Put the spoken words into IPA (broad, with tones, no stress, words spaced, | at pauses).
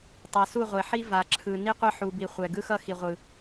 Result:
tˤa˨su˦˨ʁʷe˨ħi˦ va˨ǁʰɯ˨ ni˦qʷʌ˦ ħu˨bi˨ χʷɛ˨ɡɯ˦xʌ˦xi˨ ʁʷɯ˨